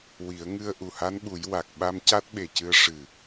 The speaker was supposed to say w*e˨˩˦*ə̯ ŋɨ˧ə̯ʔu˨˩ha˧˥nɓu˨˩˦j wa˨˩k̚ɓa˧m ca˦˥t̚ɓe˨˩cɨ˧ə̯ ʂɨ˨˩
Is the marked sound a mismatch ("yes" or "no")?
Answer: yes